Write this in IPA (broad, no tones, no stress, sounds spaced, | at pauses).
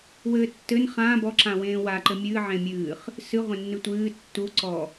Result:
w ɘː tː ɘ n χ ãː b ɔ ǁ ã w ẽː w a ǃ ɘ mʲ ɨː ʕ ẽ mʲ ɨː χ | s ɨ ʁʷ ẽ nː ɨ tʷ ɨː tː u ǀ ɔ